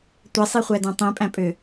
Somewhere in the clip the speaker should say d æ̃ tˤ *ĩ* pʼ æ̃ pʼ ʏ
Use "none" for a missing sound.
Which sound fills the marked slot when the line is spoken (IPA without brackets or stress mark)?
ĩ